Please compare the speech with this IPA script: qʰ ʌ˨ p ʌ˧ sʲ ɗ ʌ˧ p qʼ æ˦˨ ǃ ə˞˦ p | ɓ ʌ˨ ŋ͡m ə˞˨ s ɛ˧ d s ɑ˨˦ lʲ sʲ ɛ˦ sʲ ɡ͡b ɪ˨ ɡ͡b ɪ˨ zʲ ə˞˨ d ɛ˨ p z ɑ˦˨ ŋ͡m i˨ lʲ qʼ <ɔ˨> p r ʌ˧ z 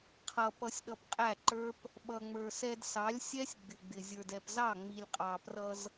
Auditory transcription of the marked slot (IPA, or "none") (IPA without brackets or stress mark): ɑ˨